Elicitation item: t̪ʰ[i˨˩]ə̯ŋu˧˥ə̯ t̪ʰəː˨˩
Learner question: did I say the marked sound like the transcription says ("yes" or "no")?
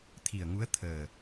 yes